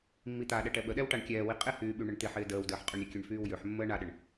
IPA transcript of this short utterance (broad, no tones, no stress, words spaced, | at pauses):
mːit̪aɗɛ ʈɛɓəɗɛw ʈaɳkʲɛːwi qʼɪhyː ɓyɳəɳt̪ɪħɪː dəːwdəːħ qʼyɳɾʲəkʲøɳ fyːwjøħmːəː ɳaɗəɳ